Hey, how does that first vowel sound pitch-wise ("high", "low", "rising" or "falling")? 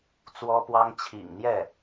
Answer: high